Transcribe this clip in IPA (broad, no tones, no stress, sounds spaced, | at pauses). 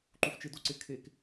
ǃ u f t͡ʃ ɪ d o ǀ ɪ kʰ e k